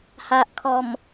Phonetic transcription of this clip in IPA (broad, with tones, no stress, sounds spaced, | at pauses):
h a˨ ʔ kʰ ɔ˨˩ m